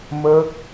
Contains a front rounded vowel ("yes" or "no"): no